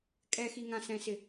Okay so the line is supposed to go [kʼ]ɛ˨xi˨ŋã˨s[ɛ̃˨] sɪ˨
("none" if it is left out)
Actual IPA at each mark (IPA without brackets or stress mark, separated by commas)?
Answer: kʼ, ɛ̃˨